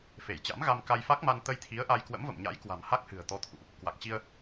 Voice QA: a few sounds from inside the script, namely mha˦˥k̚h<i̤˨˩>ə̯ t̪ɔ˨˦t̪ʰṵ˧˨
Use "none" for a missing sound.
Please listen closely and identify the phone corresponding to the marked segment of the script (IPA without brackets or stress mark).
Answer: ɨ̤˨˩